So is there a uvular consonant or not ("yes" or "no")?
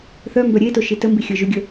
no